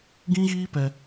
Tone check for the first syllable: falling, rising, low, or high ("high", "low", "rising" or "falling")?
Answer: high